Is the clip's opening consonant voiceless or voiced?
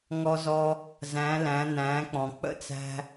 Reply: voiced